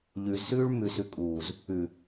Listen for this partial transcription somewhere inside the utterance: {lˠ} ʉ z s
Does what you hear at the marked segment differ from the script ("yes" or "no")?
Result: yes